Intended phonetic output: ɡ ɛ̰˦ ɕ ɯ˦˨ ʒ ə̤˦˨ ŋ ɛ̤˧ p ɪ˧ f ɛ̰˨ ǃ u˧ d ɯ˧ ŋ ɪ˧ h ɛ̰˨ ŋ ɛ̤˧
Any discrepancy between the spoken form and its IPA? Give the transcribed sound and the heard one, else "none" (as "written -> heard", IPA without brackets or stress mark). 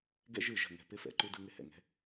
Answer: ɕ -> ʒ